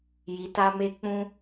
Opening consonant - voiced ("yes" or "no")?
yes